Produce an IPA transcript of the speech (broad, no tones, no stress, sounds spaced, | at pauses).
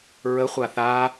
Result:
ɹ ə χʷ a θ a